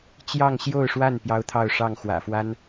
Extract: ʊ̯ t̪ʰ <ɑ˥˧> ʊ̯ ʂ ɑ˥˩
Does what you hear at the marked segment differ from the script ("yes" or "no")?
no